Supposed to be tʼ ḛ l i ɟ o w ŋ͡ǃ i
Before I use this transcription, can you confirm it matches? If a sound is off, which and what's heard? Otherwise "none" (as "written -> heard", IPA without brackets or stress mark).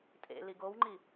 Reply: ɟ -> ɡ